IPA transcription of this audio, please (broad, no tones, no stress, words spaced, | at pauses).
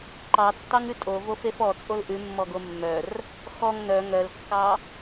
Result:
ǃɑ tːɑŋʉtʼo vofefɔ t͡sʼolʔʉmːɔɡo mːœr | xɔŋ nœ ŋœlkːɑ